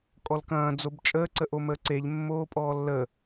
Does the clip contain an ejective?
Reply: yes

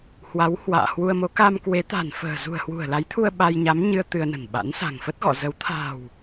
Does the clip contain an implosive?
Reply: yes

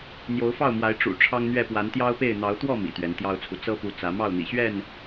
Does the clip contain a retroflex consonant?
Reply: yes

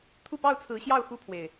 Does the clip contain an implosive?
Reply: no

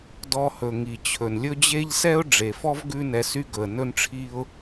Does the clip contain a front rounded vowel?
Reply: yes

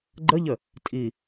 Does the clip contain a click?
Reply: yes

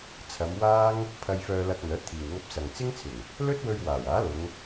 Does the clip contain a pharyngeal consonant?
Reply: no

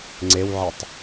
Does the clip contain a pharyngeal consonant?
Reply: yes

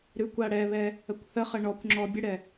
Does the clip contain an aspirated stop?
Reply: no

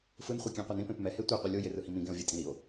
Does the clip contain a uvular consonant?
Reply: yes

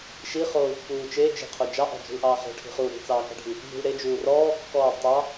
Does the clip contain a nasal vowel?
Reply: no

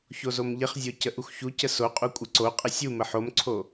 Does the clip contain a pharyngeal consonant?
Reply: yes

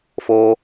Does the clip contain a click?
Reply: no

